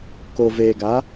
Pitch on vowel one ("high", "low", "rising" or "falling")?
low